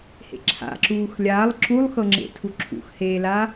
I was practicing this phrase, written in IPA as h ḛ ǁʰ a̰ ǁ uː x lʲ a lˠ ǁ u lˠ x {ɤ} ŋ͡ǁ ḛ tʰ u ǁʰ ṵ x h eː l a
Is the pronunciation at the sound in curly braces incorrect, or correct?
correct